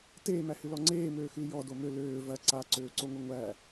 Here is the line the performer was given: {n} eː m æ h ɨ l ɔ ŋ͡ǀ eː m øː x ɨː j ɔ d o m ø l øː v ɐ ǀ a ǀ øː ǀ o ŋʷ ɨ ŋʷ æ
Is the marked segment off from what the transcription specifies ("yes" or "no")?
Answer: yes